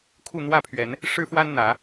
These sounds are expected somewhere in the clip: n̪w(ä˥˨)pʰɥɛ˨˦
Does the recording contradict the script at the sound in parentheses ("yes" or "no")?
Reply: no